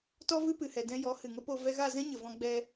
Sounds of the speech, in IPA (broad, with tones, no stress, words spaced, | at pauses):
tɔ˦vɨ˦pɨ˨hɛ˨ dɛ̃˧jɔ˨˦ hɨ˨ŋə˦po˧ vɛ˧ɣa˦˨zɛ̃˦ ɲə˨vɔ̃˧ɡ͡bɛ˧